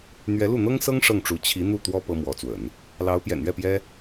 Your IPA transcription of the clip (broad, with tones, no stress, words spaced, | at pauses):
n̪ɥɛ˧˥lu˥˩ n̪ɤ˥ŋsɤ˥ŋ ʂɤ˥˩ŋʈ͡ʂu˧˥ t͡ɕʰi˧˥n̪u˥˩ t̪wɔ˥ pɤ˥mwɔ˧˥t͡swə̰˨˩˦n | lɑ˧˥ʊ̯pjɛ̰˨˩nɥɛ˥˩pjɛ˥